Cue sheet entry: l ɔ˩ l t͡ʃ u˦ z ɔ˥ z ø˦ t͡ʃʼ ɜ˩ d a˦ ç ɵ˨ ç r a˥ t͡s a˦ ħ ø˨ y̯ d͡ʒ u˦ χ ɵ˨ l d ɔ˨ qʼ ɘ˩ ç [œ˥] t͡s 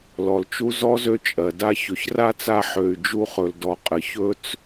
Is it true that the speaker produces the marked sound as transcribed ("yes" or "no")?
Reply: no